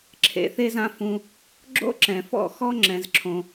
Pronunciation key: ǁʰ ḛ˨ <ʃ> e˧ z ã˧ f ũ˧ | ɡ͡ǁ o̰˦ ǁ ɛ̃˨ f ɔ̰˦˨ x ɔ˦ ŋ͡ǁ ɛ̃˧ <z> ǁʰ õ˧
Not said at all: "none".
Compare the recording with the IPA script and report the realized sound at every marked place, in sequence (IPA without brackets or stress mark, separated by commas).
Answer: θ, z